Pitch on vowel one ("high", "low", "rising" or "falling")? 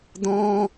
high